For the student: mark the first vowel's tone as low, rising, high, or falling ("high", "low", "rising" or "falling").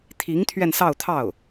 rising